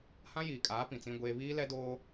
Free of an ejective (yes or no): no